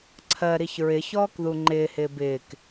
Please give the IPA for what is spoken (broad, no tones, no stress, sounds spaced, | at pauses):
ǀʰ ɜ ɾ i ç ɹ ɪ ç ɔː k ð u ŋ͡ǃ ɪː h ɪː b ɪː k